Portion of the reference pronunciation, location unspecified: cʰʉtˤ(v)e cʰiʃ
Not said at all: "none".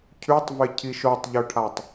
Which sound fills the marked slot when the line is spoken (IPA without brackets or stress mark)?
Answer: v